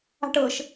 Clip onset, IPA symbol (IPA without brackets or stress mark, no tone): a̤